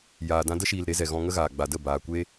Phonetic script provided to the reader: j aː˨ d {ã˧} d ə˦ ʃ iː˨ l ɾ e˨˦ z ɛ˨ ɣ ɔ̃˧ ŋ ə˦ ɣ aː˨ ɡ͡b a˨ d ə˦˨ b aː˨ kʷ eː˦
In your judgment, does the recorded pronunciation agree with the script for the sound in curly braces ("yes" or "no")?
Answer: yes